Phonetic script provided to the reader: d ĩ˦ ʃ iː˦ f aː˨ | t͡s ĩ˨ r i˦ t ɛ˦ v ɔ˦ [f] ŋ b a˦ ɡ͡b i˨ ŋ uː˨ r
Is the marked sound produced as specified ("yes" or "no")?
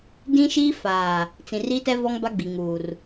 no